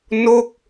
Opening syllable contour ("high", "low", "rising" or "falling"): falling